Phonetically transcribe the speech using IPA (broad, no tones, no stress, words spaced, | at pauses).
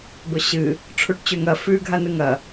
bɵɕɨ | ʈ͡ʂʰuʈt͡ɕʉŋɐ fʉ ɡʱanɨŋɐ